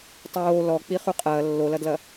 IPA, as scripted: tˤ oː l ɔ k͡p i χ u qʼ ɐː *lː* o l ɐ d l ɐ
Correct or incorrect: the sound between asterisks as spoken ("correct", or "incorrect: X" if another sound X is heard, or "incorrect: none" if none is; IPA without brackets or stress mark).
correct